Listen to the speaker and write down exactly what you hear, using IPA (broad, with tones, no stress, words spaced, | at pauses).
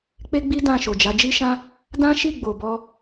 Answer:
k͡pe˦ɡ͡bi˦ dã˦˨ʃo˨d͡ʒa˨˦ d͡ʒi˧ʃã˧ | dã˦ʃi˦˨ ɡ͡bo˨bɔ˧